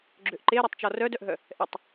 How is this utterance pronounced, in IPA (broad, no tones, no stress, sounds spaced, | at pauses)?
ɡ͡ǁ ø ʔ ǃ e ɾ ɛ tˤ t͡ʃ ɔ r œ d œ ʔ ɦ œ | ʔ ɛ tˤ